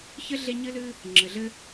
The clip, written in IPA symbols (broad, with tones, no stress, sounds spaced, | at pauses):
ç ɘ˥ ɮ e˦ ɲ ɨ˦ l ɨ˦ | ŋ͡ǁ ɘ˨ ɮ ɘ˥